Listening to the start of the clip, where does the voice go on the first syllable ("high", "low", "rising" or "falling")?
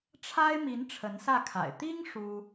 high